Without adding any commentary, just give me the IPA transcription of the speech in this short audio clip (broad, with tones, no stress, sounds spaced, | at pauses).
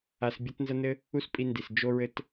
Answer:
a˧ s bʲ ɐ˦ t n z ɐ˦ n ɘ˦ | u˦ s pʼ i˧ n d i˨ s d͡ʒ o˦ ɹ ɘ˦ t